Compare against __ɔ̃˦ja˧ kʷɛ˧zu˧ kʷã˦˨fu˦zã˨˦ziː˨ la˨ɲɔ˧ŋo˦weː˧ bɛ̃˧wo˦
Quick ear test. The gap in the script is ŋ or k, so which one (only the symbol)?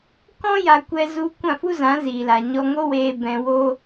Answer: k